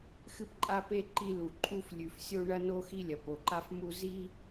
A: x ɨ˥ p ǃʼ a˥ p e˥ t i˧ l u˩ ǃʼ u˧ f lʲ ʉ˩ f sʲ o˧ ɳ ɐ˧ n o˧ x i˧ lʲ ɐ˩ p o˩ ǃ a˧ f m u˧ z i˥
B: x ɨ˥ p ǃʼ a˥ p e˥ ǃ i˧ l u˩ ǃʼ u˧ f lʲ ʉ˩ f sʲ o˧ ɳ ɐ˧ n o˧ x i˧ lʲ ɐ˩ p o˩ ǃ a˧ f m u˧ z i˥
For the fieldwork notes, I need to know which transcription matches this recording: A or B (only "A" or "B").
B